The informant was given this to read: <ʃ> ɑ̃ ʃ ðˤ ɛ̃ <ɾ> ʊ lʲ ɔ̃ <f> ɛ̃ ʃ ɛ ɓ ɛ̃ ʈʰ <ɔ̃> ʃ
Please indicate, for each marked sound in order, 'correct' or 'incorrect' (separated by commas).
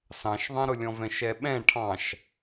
incorrect, correct, incorrect, incorrect